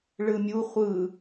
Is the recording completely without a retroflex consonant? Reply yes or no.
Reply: no